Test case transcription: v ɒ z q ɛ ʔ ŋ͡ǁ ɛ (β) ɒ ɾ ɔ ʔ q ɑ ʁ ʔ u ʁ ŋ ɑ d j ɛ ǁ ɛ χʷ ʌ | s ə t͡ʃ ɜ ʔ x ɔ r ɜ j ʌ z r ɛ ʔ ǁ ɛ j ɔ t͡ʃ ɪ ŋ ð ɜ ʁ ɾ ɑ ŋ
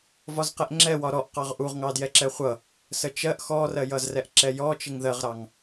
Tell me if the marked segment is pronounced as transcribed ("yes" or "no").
no